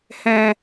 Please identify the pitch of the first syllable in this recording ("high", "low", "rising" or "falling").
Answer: low